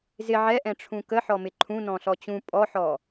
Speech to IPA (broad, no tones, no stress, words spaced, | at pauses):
zɪ ʕɛʔɛ̃ ʈ͡ʂʰũkəħɔmɪ ǃʰũ nɔ̃ɬɔt͡ɕũ pʼɔħɔ